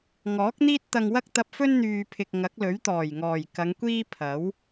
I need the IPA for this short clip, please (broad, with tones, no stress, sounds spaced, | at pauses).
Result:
ŋ ɔː˨˥ k̚ n̪ iː˥ t̚ t̪ ɐ˧ ŋ w ɐ˥ k̚ t̪ ɐ˧ p̚ f ɵ˥ n n̪ yː˨ pʰ ɪ˨ k̚ ŋ ɐ˨˥ k̚ l ɵ˨˥ ɥ t̪ ɔː˨˩ j ŋ ɔː˨˩ j k ɐ˨˧ ŋ kʷ iː˥ pʰ ɐ˨˥ w